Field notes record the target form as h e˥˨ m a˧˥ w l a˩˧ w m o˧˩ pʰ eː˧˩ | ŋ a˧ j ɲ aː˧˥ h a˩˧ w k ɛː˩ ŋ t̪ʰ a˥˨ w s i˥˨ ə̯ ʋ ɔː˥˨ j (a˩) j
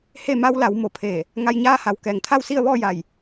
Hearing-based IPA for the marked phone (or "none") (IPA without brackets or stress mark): a˧˩